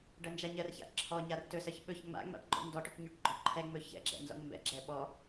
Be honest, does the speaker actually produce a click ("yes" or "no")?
yes